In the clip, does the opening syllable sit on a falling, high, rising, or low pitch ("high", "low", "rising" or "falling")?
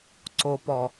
low